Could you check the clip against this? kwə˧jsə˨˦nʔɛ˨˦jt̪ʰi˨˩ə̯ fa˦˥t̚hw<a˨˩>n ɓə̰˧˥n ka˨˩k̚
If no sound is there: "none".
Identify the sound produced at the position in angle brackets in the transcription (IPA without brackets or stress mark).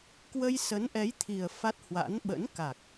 a̰˧˥